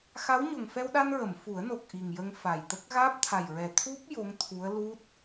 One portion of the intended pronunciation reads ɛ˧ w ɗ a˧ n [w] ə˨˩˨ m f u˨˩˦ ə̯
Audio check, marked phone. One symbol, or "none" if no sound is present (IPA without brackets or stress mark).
ɹ